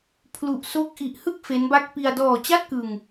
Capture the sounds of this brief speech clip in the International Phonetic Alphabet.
pʰ l u˨˩ ʔ s o˦˥ k̚ ʔ i˨˩ ʔ h ɯ˥˩ k̚ f e˦˥ n b a˦˥ k̚ p i˧ a̯ d ɔː˨˩ t͡ɕ a˥˩ t̚ k ɯ˧ ŋ

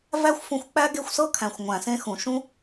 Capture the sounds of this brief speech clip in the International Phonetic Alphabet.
v æ˦ xʷ f ũ˧ xʷ k͡p æ˦ ɡ e˦˨ xʷ s ɤ˦ kʰ æ̃˨ xʷ ŋʷ æ̃˨ s ẽ˧ x ũ˨ ʃ ũ˦

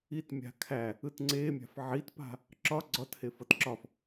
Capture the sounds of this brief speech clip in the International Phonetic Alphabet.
i t mʲ a̤ kʰ æ | ɯ t ŋ͡ǀ e mʲ a̤ f ʕ i t p a̤ | ǁ ɒ ɡ͡ǀ ɒ t h e f ʌ t ǁ ɒ f

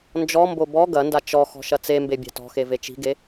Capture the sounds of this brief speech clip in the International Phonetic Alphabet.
n d͡ʒ ɔ m b o b ɔ ɡ ɐ n d a t͡ʃ ɔ x ɔ̤ ʃ ɐ t͡s e m b e bʲ a̤ t ɔ̤ x e v e t͡ʃ i̤ ɡ e

